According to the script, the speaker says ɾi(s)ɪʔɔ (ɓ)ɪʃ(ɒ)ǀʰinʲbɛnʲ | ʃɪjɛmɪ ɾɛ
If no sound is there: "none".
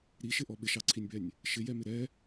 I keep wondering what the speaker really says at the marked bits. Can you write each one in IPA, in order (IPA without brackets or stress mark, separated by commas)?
ʃ, ɓ, ɑ